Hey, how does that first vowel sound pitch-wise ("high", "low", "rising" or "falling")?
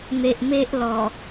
low